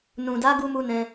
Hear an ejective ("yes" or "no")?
no